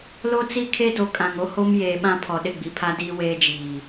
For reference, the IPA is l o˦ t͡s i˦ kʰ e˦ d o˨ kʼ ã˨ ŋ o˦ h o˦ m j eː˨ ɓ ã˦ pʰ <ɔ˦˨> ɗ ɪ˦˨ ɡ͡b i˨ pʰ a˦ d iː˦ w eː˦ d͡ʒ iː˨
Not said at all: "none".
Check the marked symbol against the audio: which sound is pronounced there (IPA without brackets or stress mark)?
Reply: ɔ˨